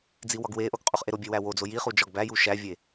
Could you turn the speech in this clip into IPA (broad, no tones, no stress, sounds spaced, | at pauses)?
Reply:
d͡z i w ɒ ɡ w e ʔ o ɡ qʼ u χ ʔ e ɾ o bʲ e w æ w o d͡z o j i χ u d͡ʒ ɒ ɡ b æ j u ʃ æ vʲ e